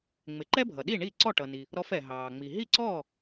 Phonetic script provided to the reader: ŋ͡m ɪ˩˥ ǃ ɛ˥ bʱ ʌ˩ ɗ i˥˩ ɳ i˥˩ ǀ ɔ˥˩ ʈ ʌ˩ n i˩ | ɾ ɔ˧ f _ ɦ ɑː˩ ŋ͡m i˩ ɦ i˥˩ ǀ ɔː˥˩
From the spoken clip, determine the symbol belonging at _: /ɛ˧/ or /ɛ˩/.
ɛ˩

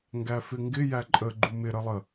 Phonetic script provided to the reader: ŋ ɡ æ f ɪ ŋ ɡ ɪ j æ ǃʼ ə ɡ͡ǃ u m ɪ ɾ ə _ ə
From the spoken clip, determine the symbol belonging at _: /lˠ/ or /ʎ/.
lˠ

